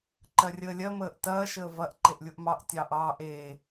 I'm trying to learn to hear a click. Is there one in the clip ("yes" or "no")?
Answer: yes